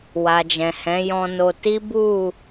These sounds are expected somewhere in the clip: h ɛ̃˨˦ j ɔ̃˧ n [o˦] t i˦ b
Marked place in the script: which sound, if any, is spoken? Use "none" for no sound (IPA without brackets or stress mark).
o˧